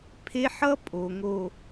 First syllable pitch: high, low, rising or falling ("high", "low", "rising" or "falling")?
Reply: high